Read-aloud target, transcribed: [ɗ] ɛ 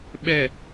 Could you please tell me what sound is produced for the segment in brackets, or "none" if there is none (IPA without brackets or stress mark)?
ɓ